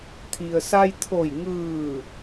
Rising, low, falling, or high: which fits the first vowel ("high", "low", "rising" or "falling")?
low